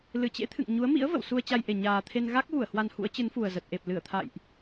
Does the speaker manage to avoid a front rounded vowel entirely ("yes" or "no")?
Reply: yes